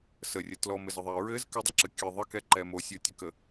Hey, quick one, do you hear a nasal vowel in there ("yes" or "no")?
no